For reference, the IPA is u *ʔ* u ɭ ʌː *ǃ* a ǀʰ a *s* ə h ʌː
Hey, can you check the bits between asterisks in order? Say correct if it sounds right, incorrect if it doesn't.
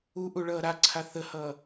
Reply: correct, incorrect: ɾ, incorrect: θ

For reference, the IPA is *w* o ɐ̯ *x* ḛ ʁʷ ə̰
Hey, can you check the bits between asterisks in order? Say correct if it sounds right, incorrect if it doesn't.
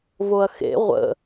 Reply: incorrect: v, correct

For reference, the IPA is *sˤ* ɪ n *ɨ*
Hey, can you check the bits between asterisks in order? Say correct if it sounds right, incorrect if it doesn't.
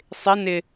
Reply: correct, incorrect: ɪ

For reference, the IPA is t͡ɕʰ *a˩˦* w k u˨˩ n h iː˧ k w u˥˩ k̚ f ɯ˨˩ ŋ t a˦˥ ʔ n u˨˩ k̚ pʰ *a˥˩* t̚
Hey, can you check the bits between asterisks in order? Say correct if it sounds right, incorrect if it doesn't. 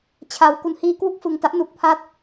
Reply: correct, incorrect: a˦˥

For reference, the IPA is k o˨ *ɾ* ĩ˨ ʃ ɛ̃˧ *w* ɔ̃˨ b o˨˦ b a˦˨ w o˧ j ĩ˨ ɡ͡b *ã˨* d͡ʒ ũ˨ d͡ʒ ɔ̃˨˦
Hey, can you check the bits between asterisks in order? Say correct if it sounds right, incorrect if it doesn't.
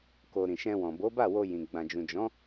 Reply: correct, correct, correct

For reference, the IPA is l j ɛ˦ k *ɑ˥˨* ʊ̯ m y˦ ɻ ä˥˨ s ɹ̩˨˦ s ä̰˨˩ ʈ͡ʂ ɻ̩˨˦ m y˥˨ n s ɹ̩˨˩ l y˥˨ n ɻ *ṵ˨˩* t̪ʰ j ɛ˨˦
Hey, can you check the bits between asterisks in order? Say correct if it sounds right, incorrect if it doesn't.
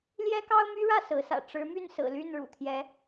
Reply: incorrect: ɑ˦, correct

